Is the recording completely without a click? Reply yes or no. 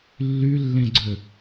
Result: no